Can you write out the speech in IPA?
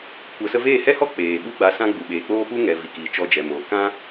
kʷə˨sə˧veː˦˨ hɛ˦hɔ˦ k͡peː˨ ɓu˦ɡ͡ba˧sã˦ɡ͡bu˨ ɓeː˨k͡poː˦pu˦ŋɛ˨ vi˨kiː˨ t͡ʃɔ˧d͡ʒɛ˨moː˨ kã˦

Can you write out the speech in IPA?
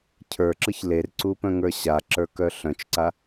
cʰə˞ǁɯç lerǀu pœ̃ŋə˞ɕaǁə˞ kœɬœ̃t͡ʃǀa

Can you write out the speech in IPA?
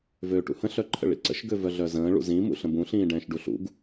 vøːʈṵhə̃ ɬœǃʰə̰ɭḭǀə̰ʃ ɡøvœɮœzə̃ː ɭṵzĩ mṵɬə̃bũ ɬĩːɖɛ̃ːʃɖuɬṵɡ

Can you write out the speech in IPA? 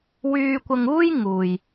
wyː˧kʷɐ˧ŋuː˥j ŋuː˨j

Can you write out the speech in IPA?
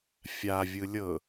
fʲa vʲɯlʲɤ

